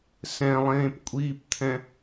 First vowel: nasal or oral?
nasal